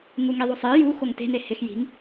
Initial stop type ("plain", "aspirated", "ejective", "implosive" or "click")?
plain